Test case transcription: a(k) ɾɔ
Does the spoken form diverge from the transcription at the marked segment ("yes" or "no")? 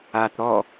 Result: yes